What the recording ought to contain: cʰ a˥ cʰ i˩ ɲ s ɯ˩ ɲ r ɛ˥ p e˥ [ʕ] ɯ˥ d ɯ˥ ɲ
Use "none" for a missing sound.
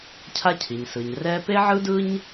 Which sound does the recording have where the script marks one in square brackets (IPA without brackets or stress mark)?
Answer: ʕ